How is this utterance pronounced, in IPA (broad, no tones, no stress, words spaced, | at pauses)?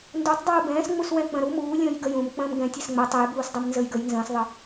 ndutˤdˤuː bɛ̃ːsŋ͡muswɛ̃ k͡pə̃ɾu muːlʲə̃ːj ɡəjũːm k͡pə̃ːmɡɛ̃ tʲɛsŋ͡mə tˤɛjbuːsdˤɛm nzəjɡəj nzə̃ːsðˤə